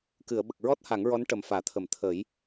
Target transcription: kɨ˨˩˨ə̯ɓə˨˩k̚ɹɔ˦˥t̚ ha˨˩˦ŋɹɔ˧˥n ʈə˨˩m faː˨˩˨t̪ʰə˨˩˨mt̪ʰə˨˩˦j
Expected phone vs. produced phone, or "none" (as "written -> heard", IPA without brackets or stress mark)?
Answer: none